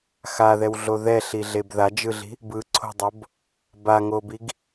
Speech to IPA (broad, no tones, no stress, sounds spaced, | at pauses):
x a ð ɛ w ɮ o ð ɛ ɬ i ɮ e b ð a d͡ʒ ɯ ɮ i̤ | b ɯ ǀʰ o̤ dˤ o b | b a ŋ o b i ɡ